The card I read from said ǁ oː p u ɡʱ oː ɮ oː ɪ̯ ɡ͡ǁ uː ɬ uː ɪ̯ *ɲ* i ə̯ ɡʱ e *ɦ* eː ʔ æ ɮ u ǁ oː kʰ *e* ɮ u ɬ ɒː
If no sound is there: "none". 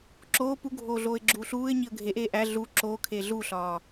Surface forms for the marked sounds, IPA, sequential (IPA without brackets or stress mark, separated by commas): ɲ, ʔ, e